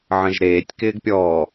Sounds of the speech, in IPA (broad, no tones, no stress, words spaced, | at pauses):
ʕə̃ʒɾeːtʲ kɪːɡpʲɔː